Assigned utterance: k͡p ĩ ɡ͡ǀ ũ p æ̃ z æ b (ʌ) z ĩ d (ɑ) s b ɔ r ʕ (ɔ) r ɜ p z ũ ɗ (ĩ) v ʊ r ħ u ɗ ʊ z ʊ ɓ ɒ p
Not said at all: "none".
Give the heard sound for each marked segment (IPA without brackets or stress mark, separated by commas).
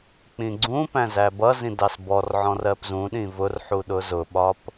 ʌ, ɑ, ɔ̃, ĩ